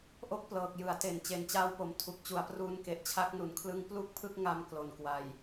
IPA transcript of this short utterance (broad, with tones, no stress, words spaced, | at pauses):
ʔo˥˩k̚plɤː˨˩k̚ jɯ˩˦a̯te˨˩n t͡ɕe˨˩nt͡ɕaː˧wpo˩˦m tʰu˨˩k̚t͡ɕu˩˦a̯pruː˧n ke˨˩ʔt͡ɕʰa˦˥k̚nu˨˩nkʰlɯ˦˥ŋ plu˥˩k̚pʰɯ˥˩k̚ ŋa˧m klo˨˩nkwa˨˩j